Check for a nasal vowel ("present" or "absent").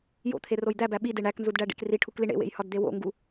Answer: absent